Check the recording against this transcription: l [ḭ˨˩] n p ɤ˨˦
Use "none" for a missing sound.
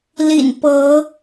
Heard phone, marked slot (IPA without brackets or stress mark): ḭ˨˩